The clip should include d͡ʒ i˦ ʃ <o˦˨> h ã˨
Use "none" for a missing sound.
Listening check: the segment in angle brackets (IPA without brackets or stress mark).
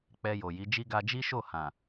o˦˨